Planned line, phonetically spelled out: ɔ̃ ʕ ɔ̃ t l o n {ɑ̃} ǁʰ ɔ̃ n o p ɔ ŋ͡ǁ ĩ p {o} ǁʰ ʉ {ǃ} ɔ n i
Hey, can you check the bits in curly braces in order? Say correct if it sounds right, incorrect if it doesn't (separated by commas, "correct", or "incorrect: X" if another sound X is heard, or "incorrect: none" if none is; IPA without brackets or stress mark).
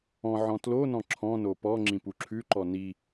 incorrect: ɔ̃, incorrect: u, correct